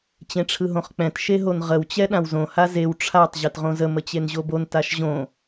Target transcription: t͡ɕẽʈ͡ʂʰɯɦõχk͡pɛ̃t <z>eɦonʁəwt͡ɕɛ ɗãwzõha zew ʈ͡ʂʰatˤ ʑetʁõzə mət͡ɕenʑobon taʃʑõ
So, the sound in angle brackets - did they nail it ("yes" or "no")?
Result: no